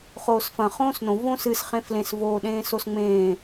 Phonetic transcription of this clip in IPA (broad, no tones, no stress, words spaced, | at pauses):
χoːsfɐ̃ χõːsnõ võsɨs χẽflẽs voːɗẽːsosŋ͡mẽː